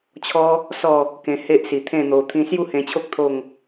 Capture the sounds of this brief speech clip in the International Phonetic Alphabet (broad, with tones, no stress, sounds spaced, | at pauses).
t͡ɕʰ ɔ˦ | s ɔ˥˧ | k ẽ˧ h e˦ ʔ s i˨˩ t̪ʰ ẽ˥˧ n̪ o˧ t̪ʰ ĩ˧ s j u˥˧ h ẽ˧ t͡ɕʰ o˦ k̚ t̪ʰ o˥˧ ŋ